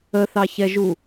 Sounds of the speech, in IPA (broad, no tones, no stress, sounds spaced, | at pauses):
ə θ ɑ ç ɛ ʒ u